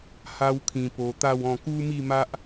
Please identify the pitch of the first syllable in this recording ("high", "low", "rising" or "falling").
high